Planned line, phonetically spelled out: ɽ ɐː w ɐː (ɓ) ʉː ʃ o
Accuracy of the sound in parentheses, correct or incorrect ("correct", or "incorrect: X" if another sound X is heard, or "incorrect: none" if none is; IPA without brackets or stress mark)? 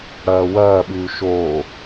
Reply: correct